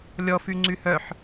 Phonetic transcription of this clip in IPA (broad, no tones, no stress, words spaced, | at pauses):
lʲɔ fyŋ͡ǀyhœħ